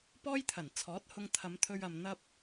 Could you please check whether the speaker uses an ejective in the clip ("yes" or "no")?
no